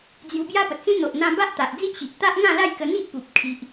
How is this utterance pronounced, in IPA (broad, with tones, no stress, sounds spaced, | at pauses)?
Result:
d͡z j u˧ b j a˦ p ə˨ t̚ s ĩ˦ n̪ o˨ ʔ n̪ ã˧ b a˦ ʔ t̪ a˨ ʔ d͡z i˦ ʔ ɕ i˨ ʔ t̪ a˦ ʔ ŋ ã˥˧ l a˥˧ j k ə˧ n̪ i˦ ʔ p u˨ p̚ kʰ i˨ ʔ